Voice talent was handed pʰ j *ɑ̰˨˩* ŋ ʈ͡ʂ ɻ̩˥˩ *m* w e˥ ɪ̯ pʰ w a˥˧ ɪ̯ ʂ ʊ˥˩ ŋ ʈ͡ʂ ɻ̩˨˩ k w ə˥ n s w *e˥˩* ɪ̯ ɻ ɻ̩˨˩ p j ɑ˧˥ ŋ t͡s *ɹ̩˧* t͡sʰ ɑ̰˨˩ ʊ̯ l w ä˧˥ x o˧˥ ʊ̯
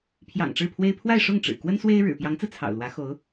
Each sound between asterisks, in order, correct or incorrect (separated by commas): correct, incorrect, incorrect, correct